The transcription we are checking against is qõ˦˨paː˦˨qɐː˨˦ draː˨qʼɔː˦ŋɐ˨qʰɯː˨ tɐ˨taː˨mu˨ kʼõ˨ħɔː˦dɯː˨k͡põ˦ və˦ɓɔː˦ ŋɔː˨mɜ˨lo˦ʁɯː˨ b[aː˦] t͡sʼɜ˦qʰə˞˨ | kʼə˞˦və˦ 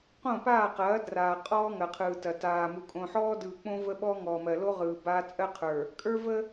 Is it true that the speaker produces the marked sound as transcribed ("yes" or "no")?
yes